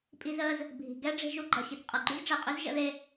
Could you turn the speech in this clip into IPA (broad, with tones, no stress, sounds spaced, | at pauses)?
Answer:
pʼ i˧ z əː˧ z | bʱ i̤˩ ɡ ɛ˥ ɖ͡ʐ e̤˧ ʒ u˧ ɡ͡ǃ ʌ˩ ɕ i˩ t qʼ ʌ˩ ɡ͡ǃ y˥ z ɖ͡ʐ ɛ˩ qʼ ø˥ z ʒ ə̰˧ ð e˧